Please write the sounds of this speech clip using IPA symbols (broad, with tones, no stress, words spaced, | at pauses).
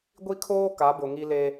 ɡʷi˦kʰoː˦ ka˨˦bʊ˨ŋi˦le˦